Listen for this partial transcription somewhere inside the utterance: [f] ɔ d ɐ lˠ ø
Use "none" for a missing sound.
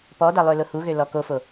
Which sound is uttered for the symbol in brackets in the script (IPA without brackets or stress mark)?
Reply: p